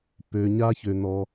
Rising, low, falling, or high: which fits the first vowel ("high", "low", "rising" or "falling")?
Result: low